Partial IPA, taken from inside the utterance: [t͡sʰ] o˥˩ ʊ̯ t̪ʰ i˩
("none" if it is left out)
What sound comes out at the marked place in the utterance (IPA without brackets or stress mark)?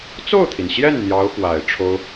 t͡s